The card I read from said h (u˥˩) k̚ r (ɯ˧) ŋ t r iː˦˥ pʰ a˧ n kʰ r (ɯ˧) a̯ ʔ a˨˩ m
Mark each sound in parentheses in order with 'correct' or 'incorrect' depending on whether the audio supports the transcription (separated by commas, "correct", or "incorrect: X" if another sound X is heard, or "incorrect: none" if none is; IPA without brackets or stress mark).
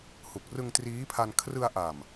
incorrect: u˨˩, correct, correct